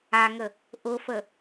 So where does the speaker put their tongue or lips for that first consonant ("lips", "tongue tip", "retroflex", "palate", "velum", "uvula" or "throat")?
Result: velum